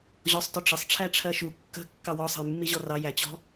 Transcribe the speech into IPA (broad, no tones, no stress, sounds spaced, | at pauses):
ʑ ɔ sˤ t ʊ ʈ͡ʂ ə sˤ ʈ͡ʂʰ æ ʈ͡ʂʰ ɜ ʃ u kː ə̤ kː ɑ w ɔ sˤ ə̤ j mː i ʑ ɔ r ɑ j æ t͡ɕ ɔ̤